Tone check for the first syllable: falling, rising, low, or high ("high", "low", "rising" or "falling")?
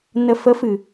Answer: low